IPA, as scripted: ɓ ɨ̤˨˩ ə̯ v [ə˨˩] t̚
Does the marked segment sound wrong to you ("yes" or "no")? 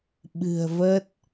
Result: yes